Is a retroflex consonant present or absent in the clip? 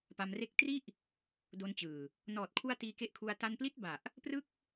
absent